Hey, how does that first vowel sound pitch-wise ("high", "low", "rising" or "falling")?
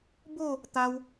falling